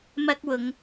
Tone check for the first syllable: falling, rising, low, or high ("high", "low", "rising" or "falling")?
high